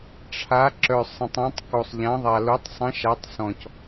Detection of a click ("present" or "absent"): present